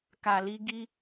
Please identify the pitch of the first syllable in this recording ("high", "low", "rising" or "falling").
low